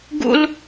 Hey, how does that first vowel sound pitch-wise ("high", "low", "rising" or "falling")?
high